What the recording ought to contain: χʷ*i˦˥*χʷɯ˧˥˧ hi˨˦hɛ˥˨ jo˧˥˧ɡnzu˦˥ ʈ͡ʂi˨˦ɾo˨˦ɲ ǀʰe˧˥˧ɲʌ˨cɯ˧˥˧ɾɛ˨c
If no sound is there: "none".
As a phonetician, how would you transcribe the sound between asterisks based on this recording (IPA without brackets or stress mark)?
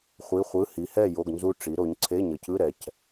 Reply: i˧˥˧